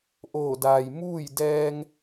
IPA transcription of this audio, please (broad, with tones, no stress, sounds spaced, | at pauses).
ʔ oː˧˩ d aː˩ j m uː˥˨ j d ɛː˧ ŋ